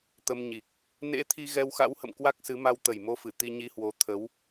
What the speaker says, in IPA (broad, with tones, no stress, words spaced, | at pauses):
t̪ə˧mɲi˨˩k̚ | nḛ˧˥t̪ʰi˧ ɣɛ˧wxa̰˧˥whə̰˧˨m kwa˦˥k̚sɨ˨˦ ma˧wt̪ə˨˩jmo˧fɨ˧˩ t̪i˧ɲi˧hwo˨˦ t̪ʰə˨˦w